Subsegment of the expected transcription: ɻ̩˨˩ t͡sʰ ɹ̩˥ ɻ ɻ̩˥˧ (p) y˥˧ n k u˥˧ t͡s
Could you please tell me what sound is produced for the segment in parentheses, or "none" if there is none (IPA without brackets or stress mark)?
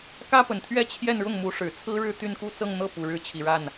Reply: t̪